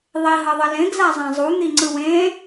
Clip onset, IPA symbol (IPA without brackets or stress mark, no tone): ðˤ